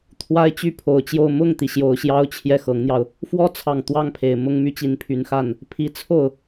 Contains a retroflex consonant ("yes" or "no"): no